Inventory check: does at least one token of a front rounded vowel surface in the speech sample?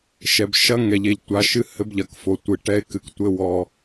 no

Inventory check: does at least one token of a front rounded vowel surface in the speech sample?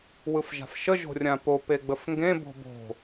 no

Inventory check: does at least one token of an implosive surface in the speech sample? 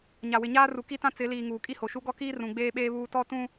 yes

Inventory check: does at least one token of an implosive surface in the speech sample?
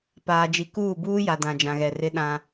yes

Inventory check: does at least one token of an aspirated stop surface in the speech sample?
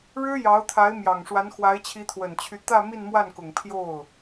yes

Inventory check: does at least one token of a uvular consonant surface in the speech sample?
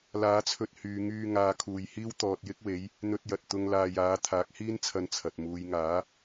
no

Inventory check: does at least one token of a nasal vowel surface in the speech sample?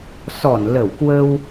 no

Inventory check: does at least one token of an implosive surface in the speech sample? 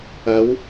no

